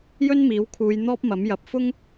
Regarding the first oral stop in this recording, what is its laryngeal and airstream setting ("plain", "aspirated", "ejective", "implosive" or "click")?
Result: aspirated